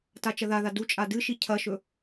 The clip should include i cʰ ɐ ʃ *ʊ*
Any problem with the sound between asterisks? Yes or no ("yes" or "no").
yes